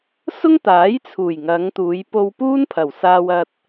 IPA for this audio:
sʊ˥ŋt̪aː˨˥jt͡sʰuː˨˩j ŋɐ˨˧ŋt̪uː˨˧j po˧wpuː˥n pʰɐ˨˩wsaː˧wɐ˧t̚

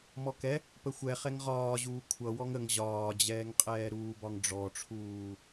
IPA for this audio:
mɔkɛ | pəxʷɛ χɛŋʁɒːʑuː kʷʰʌ wɔŋəŋ ʑɒːd͡ʑɛːŋqʼɛː ɾuːbɒŋɖ͡ʐɔʈ͡ʂʰuː

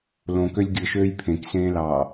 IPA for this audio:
lõkølʲ ɡʲɯʃøːj pʰẽksẽːlɑː

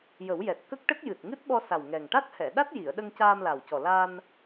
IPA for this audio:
jə˨˩˦wjɛ˨˩t̚ kə˦˥k̚ʈə˦˥k̚ jɨ˨˩t̚ŋɨ˦˥t̚ɓɔ˧sa˨˩w ŋɛ˨˩ŋ ʈa˦˥t̚hɛ˨˩˨ɗa˦˥t̚ ji˨˩˨ə̯ɗə˧ŋ caː˧mla˨˩wcɔ˨˩ la˧n

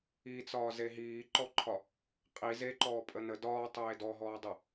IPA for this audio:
it͡sɒː zeɦiːǃɔǃʰɒ | qʼi zeǃɔː pʼənə dɒːtˤeː dɔɦɔːdˤɘ

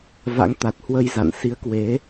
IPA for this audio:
va̰˧˥ŋt̪a˨˩t̚hwə˧jza̰˧˨n si˨˦ə̯kwe˨˦

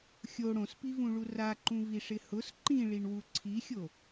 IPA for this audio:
xʲo ɽõspivũɭu raǃũviʂɪ hʊs ǃĩɭiɳwu ǀʰixʲo

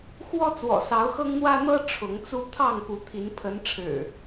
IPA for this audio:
xwɔ˦t͡swɔ̰˨˩sɑ˨˦ʊ̯xɤ˦ŋ n̪wä˦n̪ɤ˦ ʈ͡ʂʰʊ˨˦ŋt͡su˦ t̪ʰɑ˥˨ŋpu˨˦ t̪ʰi˨˦npʰə˨˦nʈ͡ʂʰɻ̩˨˩

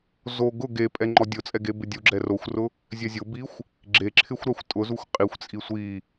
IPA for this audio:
zo ɡʊ ɡepʼɛ ŋ͡ǃɔdʲʊt͡sʼɛ ɡebɪdʲuɡ͡ǁɛ roxʷrʊ | zʲɛzʲʊbixʷ | ɡ͡ǁeǁʰɪxʷɾaxʷ tʼʊzuxʷ qʼixʷt͡sʼi sʷi

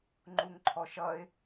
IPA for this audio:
ŋ͡ǃuŋǃʰɔʃʌɪ̯

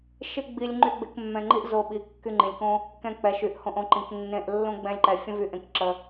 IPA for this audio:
ʃɪ˦ɡ͡bi˧lʲ ŋ͡ǃy˧ɡ͡bɪ˧k mːɛ̃˧ŋ͡ǃi˦ʔ zo˧ɓi˨ kːy˧ŋ͡ǃĩ˨lʲkõ˦ | kɛ̃˧k͡pɛ˨ʃy˨ʔhõ˧ʔ õ˧ǃĩ˨knːẽ˧ʔ lːõ˦ɡ͡bɛ̃˦lʲǃɛ˧ fʲə̃˦vy˧ʔẽ˧kǁə˧

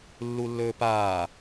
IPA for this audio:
lːulːɵːpaː

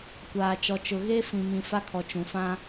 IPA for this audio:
kʷaː˨t͡ʃɔ˨t͡ʃʊ˨ ɣe˦ fĩ˨mĩ˨ fa˦kʰɔ˨ t͡ʃũ˨fã˦

